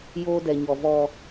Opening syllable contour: high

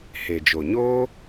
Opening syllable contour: low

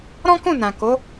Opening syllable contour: high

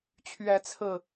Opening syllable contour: rising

